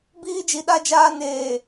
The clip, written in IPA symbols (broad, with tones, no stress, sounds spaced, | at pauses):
b iː˦ d͡ʒ i˨ ɗ a˦ d͡ʒ aː˦ n eː˨